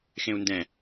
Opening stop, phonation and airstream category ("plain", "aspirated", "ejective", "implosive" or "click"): plain